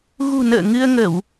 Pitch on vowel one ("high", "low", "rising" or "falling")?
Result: low